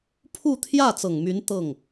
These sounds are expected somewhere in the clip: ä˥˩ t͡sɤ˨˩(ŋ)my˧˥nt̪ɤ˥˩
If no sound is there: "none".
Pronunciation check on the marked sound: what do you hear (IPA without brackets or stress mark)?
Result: ŋ